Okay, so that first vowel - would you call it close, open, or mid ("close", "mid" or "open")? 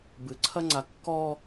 close